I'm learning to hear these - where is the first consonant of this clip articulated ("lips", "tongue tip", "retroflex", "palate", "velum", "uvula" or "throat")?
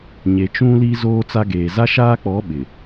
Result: palate